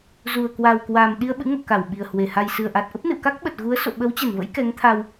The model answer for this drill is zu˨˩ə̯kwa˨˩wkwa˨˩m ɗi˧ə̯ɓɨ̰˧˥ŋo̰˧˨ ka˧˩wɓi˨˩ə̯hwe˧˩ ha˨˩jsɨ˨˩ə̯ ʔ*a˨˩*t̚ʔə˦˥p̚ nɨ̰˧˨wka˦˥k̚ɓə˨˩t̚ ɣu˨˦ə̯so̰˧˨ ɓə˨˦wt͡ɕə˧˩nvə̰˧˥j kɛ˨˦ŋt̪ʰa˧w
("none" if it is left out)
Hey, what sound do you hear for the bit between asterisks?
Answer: a˨˩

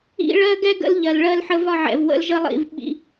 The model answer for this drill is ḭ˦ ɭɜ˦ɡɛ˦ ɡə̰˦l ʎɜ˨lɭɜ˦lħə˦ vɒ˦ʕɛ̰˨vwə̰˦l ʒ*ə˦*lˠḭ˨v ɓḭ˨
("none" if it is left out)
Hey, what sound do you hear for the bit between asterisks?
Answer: ə˦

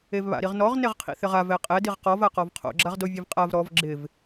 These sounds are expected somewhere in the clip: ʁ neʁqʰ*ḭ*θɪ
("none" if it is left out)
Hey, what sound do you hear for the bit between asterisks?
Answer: ḭ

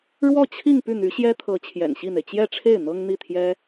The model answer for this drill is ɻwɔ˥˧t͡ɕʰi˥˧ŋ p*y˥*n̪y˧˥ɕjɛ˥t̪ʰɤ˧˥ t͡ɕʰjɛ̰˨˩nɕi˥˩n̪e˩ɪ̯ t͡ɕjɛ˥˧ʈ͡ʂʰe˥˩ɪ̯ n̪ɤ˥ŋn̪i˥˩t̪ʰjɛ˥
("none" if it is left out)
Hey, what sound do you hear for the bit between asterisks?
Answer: y˥˩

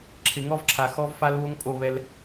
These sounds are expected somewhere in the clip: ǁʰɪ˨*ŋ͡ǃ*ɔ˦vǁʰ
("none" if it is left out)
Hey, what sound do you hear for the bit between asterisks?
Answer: ŋ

